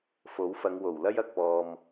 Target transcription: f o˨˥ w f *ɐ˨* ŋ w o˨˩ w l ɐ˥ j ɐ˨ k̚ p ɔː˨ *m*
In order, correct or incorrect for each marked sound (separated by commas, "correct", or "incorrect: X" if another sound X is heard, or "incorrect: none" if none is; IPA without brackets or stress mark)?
incorrect: ɐ˨˧, correct